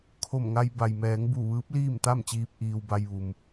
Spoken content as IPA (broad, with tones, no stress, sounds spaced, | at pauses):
kʰ o˧˩ m ŋ a˧ j b a˩ j m ɛː˩˧ ŋ b u˧˩ ʋ ɯː˧˥ p̚ l iː˥˨ m t̪ a˥˨ m t͡ɕ iː˧ p̚ ʔ iː˧ w b a˧ j ʋ u˩ m